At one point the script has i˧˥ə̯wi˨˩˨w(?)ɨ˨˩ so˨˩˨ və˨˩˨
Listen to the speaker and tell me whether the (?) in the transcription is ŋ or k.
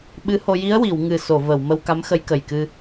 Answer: ŋ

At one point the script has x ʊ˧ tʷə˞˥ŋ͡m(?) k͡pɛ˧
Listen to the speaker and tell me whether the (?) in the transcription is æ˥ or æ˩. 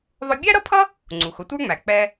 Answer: æ˩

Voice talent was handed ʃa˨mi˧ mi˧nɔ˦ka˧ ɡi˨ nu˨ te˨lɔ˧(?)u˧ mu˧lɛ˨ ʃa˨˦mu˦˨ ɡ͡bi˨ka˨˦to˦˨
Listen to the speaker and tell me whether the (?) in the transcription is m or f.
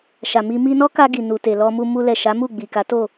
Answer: m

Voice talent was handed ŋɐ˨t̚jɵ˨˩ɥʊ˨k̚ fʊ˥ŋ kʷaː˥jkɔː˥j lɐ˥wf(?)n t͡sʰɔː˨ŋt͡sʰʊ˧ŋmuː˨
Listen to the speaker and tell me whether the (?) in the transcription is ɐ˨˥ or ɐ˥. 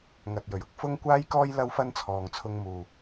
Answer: ɐ˥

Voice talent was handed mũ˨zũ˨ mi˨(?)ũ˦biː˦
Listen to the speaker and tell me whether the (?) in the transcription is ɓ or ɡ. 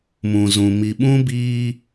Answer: ɓ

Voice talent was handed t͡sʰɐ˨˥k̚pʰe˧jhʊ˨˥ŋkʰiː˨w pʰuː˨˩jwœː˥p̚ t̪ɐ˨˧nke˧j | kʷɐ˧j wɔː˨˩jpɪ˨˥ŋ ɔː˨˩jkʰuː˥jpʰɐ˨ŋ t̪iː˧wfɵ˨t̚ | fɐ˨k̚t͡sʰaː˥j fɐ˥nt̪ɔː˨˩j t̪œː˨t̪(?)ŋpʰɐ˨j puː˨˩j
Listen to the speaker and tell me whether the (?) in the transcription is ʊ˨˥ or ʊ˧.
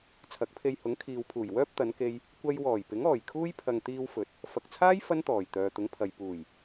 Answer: ʊ˨˥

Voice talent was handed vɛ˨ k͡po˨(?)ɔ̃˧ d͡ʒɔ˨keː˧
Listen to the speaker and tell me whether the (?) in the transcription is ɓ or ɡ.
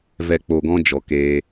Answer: ɡ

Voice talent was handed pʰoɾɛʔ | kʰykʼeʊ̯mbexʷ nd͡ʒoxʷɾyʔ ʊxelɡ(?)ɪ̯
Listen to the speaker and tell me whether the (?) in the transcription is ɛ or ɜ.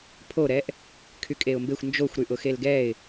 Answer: ɛ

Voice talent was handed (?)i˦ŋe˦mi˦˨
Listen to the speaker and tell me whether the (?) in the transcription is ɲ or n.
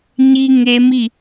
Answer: ɲ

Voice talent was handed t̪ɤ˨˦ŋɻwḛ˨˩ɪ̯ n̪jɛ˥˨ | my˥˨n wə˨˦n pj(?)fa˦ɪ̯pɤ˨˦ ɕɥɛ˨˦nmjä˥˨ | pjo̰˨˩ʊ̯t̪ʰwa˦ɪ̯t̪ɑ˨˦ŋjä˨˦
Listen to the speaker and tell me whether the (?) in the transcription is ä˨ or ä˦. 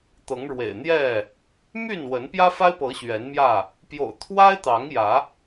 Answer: ä˦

